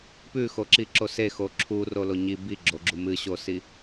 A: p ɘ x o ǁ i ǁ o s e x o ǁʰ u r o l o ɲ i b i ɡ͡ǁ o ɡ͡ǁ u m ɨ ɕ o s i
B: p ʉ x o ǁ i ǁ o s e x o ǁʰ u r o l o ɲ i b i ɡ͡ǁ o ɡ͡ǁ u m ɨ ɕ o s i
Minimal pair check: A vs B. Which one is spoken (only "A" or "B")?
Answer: B